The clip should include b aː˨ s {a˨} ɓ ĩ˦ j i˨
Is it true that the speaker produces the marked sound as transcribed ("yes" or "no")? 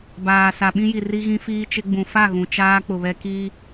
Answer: yes